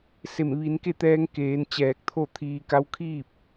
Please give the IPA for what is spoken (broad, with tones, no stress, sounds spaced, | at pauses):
s e˧˩ m ʋ i˩˧ n k e˥˨ t̪ ɛː˧ ŋ k eː˩˧ n t͡ɕ ɛː˧˩ k̚ t̪ʰ o˥˨ t̪ʰ iː˧ k a˧˥ w kʰ iː˥˨ p̚